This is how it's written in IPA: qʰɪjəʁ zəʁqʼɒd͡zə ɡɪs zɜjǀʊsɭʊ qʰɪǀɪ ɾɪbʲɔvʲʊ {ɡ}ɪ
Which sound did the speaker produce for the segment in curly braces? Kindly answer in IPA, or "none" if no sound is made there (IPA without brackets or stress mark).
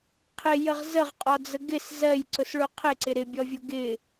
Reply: ɡ